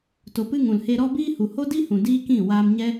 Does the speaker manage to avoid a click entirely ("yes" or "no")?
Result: yes